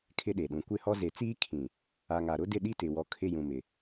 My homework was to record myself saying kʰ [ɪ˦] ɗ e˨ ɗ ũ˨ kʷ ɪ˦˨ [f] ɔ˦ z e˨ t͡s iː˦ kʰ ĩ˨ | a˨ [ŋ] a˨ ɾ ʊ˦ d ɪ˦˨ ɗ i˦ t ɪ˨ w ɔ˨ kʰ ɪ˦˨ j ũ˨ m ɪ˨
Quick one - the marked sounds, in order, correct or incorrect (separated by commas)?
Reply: correct, incorrect, correct